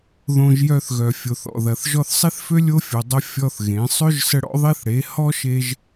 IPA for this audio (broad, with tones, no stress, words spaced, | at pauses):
ðõ˧ʒjœ˧θɣœ˨ fʲo˨θɔ̰˨ðɐ˨θ ʒɔ˧θsˤi˦θfø˦ lʲo˦fʲo˨ dˤə˧ fʲɔ˦θɣẽ˨˦ sˤø˦ʒsə˧ ɽɔ̰˦ðˤi˦θɽe˨˦ hɔ˦ʃe˧ʒ